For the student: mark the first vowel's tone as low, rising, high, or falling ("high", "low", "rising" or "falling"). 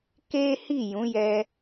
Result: high